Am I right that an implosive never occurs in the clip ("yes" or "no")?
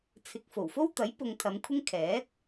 yes